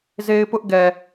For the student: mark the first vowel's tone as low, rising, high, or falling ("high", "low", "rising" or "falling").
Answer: high